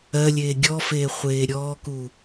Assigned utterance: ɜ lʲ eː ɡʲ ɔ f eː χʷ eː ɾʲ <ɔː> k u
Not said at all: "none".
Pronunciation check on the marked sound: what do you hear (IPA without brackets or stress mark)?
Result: ɔː